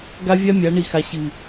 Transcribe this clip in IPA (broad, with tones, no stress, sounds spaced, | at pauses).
ɡ a˦ vʲ a˦ mʲ a˨˦ ɳ i˨ x a˨ ɕ ɨ˨